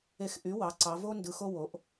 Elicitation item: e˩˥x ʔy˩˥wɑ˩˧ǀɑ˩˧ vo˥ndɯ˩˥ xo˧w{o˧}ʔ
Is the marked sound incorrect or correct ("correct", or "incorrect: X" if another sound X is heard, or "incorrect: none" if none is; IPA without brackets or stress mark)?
incorrect: o˩˧